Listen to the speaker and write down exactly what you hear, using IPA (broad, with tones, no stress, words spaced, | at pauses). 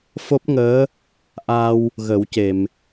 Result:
fo˦˥p̚ŋəː˧˥ | ʔa˧w | ɣə˨˩˦wce˨˩˨m